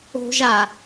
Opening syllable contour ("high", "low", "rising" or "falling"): high